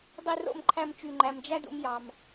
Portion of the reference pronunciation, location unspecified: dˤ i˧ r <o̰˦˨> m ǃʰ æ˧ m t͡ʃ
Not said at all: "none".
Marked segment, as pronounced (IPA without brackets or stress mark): o̰˦˨